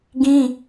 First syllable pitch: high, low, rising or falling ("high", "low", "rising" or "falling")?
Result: high